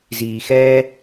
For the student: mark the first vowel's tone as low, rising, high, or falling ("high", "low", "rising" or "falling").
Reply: low